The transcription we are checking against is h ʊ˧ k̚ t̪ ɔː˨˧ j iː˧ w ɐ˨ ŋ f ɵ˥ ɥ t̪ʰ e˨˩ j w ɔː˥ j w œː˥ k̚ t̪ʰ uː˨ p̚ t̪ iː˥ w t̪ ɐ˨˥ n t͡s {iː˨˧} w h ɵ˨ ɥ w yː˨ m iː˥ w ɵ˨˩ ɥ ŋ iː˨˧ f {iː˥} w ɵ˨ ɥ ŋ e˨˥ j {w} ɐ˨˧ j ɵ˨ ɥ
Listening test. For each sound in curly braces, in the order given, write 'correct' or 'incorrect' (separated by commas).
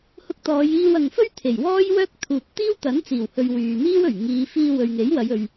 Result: incorrect, incorrect, correct